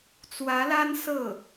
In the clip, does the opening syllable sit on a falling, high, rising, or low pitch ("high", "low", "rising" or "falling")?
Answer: rising